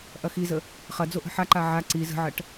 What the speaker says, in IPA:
ʔɐxizə | χɐd͡zoʔ ə̤ħaǃa ʕa ǀi zə̤ʕɐʈ

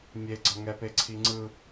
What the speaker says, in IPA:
mʲeɡ͡ǀʌ ŋɛpeǀʰiŋ͡ǀɯ

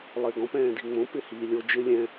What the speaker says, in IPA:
lˠɪːɡɔ̃p ɛ̃ːdiŋ͡mõ pɪhiːlʲo d͡ʒɪ lʲɛ̃

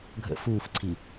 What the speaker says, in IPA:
ɡʱə̰ fuːfǀʰi

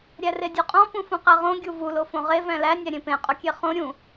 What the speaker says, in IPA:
ɾʲæredʲuqʼɔ̃ pũfũqæʁõ ɡʲuvu lofõʁe væ̃læ nʲæɾʲẽpẽ qʼokʲeχõ ɾʲũ

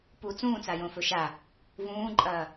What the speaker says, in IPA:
pu t͡sũːt͡sajõ fɵʃa | vũːǃʼɐː

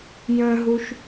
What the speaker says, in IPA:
jə̃ɦuʃ

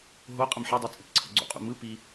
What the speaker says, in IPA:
ɦoqʼəm ħedˤi t͡sʼɪpǀʰə̰ɡ͡ǀo̰qʼṵ mɯ pi

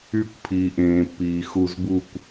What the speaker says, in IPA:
y˧˩kʷpʰiː˩ʔẽː˩pːiː˩ xu˧˩zbu˥˨kʷ

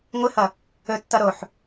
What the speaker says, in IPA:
ŋʷɨhʌ | ɵtːʌ ɾoħ

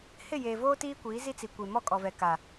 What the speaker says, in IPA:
hɪ˦˨jeː˨voː˦ tiː˦kʷiː˨˦zi˦t͡si˨ kʷe˨mɔ˦˨kʼɔ˨ vɛ˨ka˨

